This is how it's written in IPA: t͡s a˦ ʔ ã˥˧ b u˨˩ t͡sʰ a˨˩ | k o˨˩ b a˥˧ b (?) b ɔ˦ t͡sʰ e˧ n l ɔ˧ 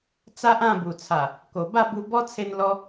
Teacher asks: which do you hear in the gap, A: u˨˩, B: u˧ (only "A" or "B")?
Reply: B